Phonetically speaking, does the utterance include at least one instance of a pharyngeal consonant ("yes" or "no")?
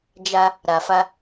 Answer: no